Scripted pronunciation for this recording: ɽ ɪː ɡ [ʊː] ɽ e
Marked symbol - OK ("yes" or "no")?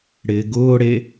yes